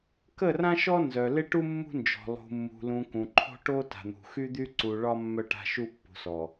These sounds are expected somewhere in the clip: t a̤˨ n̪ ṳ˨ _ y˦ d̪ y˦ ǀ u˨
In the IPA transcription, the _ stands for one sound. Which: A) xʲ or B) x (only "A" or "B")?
B